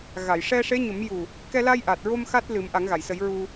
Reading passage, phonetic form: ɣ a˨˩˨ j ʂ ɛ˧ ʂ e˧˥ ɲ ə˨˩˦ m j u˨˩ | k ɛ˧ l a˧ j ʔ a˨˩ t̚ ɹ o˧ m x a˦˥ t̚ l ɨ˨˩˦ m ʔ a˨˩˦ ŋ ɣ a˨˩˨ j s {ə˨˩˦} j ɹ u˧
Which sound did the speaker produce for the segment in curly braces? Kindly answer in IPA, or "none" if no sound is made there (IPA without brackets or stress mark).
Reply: ə˨˩˦